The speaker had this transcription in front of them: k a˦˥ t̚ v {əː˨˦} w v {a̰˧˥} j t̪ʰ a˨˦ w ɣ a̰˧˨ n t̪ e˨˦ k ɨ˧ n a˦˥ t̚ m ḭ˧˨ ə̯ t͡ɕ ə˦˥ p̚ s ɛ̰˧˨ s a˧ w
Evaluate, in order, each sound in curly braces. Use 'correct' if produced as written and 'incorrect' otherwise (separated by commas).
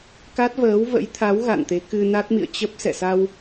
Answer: correct, incorrect